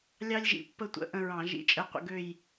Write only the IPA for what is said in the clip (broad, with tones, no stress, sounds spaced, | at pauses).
lʲ ɑ˥ lʲ ʒ ḭ˧˩˧ pː ə˥˧ tʷ ə̰˩˧˩ ʔ ə̃˥˧ ɹ ɑ̃˧˩˧ ʒ ḭ˧˥˧ t͡ʃʼ ə˧˥˧ qʷ ə̰˥˧ ɡ ø˥˧ j